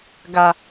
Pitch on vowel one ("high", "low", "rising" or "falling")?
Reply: low